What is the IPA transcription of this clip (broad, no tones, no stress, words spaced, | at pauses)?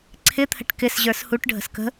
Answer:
ǀʰɪt̪ʰə̤ʈ kɪs ʑə˞shuʈ ɖʱə̤skə̤